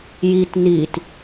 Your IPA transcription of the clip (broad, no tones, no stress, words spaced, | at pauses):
jit nit